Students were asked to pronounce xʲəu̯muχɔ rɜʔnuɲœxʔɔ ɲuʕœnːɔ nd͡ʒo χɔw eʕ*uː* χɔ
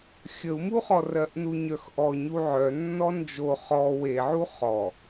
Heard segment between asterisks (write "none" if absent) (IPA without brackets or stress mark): u